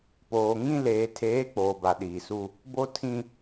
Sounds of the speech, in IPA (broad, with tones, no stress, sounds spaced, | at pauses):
p oː˨ ŋ ĩ˦ l eː˨ tʰ eː˨˦ k͡p oː˨ b a˨ ɗ iː˨ s u˦ | b o˦ tʰ ĩ˦